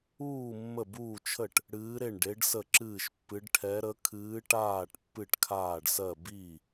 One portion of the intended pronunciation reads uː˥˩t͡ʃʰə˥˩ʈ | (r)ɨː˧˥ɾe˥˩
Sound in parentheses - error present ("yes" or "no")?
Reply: yes